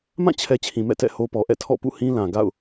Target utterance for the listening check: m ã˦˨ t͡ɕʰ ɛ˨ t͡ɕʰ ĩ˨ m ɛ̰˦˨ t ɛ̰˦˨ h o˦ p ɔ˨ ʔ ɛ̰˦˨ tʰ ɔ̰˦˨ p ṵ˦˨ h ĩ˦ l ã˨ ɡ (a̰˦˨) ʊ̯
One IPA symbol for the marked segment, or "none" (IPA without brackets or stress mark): a̰˦˨